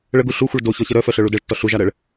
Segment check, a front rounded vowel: present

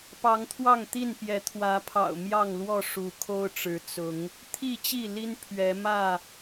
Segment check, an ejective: absent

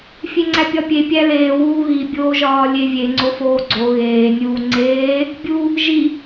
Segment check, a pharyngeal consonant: absent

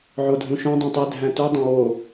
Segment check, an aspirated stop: absent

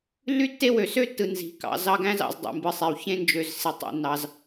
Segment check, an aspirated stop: absent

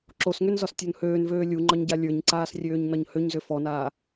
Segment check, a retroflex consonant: absent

